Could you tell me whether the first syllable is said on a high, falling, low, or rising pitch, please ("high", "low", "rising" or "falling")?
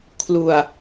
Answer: low